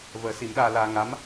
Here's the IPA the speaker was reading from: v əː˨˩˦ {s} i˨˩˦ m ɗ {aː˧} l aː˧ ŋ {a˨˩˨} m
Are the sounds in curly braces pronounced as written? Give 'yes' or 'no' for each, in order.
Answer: yes, yes, no

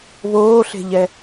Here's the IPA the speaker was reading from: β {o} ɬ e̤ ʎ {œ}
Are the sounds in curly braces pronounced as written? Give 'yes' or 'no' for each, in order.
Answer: no, no

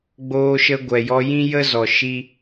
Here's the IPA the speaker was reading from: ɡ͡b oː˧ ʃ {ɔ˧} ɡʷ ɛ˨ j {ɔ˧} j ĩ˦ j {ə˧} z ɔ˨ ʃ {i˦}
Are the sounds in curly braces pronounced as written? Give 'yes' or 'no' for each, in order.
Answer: no, yes, no, yes

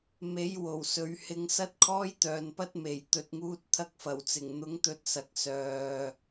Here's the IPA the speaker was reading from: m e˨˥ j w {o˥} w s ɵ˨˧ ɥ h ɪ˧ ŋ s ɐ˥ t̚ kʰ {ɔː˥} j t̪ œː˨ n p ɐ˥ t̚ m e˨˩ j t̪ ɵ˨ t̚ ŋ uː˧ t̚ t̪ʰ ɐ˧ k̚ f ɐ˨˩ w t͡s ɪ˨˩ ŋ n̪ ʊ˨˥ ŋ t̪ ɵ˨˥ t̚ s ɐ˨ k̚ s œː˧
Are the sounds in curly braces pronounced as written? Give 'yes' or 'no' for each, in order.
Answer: no, yes

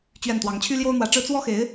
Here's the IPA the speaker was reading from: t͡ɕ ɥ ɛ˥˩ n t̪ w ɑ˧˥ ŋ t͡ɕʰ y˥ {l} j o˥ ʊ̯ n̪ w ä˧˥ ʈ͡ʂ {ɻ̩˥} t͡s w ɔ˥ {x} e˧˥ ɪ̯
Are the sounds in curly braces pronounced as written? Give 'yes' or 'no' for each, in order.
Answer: yes, yes, yes

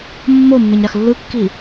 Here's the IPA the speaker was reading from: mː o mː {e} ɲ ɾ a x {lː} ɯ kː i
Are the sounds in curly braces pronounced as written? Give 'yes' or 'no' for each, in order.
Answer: yes, yes

